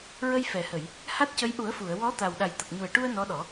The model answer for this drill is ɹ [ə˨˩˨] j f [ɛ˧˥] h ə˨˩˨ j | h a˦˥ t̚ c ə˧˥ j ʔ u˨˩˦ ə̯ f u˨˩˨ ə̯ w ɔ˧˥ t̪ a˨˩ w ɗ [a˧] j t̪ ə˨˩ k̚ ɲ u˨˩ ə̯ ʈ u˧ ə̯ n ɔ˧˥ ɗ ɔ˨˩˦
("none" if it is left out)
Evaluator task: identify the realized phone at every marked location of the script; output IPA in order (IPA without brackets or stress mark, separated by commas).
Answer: ə˧, ɛ˨˩˨, a˨˩